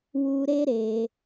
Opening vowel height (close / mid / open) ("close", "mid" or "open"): close